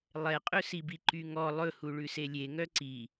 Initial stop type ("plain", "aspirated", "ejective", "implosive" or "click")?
ejective